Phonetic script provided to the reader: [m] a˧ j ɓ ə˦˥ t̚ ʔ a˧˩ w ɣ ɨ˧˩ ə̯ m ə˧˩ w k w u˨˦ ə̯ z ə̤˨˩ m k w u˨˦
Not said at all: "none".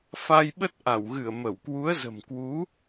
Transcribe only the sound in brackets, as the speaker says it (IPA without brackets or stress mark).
f